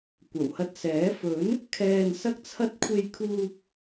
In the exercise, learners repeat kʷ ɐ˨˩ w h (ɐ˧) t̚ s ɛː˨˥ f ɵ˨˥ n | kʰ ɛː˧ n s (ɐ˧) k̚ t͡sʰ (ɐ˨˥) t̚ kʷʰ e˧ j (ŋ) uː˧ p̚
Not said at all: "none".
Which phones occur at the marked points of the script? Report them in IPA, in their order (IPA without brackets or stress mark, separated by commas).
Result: ɐ˧, ɐ˥, ɐ˥, kʰ